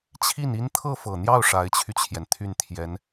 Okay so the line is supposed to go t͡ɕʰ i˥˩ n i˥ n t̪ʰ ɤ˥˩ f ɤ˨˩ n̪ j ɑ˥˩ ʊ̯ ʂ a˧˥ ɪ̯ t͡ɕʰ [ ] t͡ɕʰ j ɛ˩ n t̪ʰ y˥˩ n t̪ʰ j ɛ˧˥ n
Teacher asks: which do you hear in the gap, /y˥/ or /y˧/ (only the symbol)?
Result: y˧